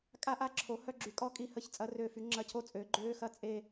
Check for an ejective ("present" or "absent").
present